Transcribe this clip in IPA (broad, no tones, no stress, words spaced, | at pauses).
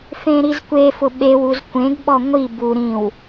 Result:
fẽɾizkʷefʊ ɓewuz kʷẽɡɓɔ ŋʷi bu ɾĩw